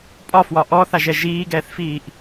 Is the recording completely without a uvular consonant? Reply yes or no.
yes